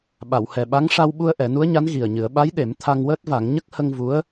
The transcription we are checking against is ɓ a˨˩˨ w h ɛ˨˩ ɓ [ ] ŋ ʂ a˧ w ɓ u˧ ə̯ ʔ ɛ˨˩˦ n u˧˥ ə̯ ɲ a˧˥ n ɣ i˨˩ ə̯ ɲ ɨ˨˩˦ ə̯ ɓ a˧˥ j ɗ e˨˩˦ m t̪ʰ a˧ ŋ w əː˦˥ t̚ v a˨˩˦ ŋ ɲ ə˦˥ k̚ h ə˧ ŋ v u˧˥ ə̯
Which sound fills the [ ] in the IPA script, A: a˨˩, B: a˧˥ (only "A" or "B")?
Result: B